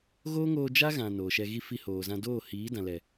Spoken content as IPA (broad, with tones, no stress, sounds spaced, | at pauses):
ɣ oː˦ ŋ oː˧ d͡ʒ a˦ ɣ ã˨ n oː˨ ʃ ɛ˧ ɣ i˦ f i˧ h oː˨ z ã˧ d oː˦˨ h iː˨˦ d ã˨ l ɛ˨